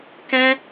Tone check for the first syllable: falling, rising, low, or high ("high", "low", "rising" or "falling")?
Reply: high